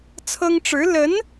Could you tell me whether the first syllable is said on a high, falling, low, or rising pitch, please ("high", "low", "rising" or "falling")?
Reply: high